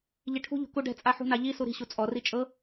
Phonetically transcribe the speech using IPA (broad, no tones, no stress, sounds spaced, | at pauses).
ʎ i ʈʰ ṳ ʎ ṳ k u ɖ ɛ̤ t͡sʼ a ħ ṳ n a ʎ i s u ɾ i̤ ɕ u t͡sʼ ɔ r i t͡ʃʼ ɤ